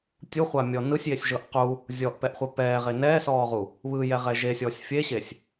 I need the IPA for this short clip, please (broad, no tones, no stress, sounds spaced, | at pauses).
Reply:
tʲ u χʷ a mʲ ɔ n ɯ sʲ j e sʲ ʒ ɤ ʔ q u | zʲ ɔ ʔ p ɛ ʔ χʷ ɛ p ɛː ʁ e n ɛː s ɔː ʁ u | β ɯ j ɛ ʁ ɛ ʒ e sʲ ɔː sʲ fʲ e ɕ e sʲ